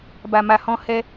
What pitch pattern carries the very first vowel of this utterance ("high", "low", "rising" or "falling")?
low